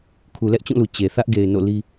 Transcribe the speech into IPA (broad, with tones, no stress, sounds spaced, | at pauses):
kʰ u˨ l ɛ˦ ʔ t͡ɕ ũ˦˨ l u˨ t͡ɕ e˨ θ ä˦ ʔ ɡ e˨ ɪ̯ n o̰˦˨ l i˦